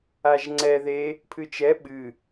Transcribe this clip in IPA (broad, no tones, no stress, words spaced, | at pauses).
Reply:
aʒŋ͡ǀɛ ðe | pʰɨt͡ʃɛ ɓɨ